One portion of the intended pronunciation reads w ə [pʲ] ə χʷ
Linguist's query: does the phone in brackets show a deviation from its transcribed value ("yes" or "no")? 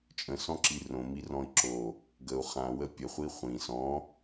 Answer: no